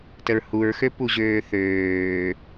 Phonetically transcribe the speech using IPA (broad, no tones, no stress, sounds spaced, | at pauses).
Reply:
t ə ɹ h u ɹ x ø p u ʑ øː θ øː